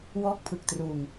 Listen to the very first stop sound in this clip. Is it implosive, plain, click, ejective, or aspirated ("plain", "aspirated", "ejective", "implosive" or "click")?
plain